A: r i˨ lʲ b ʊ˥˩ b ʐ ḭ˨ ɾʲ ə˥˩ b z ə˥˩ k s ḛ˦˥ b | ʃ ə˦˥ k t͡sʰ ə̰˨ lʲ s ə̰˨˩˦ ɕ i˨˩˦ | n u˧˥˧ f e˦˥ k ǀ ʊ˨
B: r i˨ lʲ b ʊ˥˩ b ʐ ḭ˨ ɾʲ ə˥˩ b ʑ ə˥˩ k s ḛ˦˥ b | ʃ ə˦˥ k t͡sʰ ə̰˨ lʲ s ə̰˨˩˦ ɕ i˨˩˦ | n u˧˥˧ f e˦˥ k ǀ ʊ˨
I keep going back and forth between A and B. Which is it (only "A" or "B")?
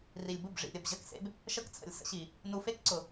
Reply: B